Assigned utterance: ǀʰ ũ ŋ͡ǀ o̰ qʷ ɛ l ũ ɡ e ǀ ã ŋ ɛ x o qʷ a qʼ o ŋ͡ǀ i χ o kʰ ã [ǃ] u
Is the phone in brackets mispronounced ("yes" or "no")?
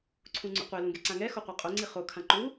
no